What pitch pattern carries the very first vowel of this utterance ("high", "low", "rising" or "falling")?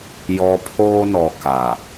low